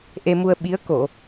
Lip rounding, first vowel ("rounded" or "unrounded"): unrounded